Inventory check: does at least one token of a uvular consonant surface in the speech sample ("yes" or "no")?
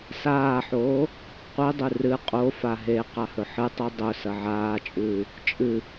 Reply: yes